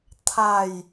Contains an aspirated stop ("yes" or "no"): yes